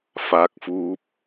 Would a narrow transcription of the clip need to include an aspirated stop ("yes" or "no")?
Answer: no